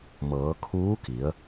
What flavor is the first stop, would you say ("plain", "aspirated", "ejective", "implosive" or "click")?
aspirated